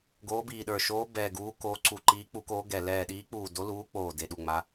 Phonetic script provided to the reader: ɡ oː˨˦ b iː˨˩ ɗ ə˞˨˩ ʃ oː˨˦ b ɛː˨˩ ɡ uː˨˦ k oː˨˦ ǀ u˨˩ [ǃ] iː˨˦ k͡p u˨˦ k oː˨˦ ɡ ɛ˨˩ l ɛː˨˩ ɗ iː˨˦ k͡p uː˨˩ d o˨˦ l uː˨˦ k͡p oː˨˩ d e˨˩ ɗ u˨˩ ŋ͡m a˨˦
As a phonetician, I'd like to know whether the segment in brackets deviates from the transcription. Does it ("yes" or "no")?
no